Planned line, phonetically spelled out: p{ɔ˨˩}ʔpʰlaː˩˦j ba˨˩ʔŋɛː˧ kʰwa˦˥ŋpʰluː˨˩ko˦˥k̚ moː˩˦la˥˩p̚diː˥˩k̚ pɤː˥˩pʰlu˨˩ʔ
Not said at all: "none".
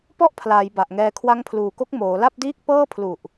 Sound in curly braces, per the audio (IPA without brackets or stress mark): ɔ˥˩